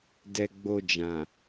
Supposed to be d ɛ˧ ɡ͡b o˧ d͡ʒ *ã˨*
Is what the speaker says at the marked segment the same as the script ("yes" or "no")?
yes